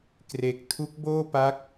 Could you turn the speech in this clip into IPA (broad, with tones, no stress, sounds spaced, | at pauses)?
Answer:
k r e˨˩ k̚ tʰ u˦˥ k̚ b oː˥˩ p a˦˥ k̚